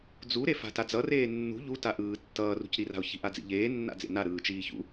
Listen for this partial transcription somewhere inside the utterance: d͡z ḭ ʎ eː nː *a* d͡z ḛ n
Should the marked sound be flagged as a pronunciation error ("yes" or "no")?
yes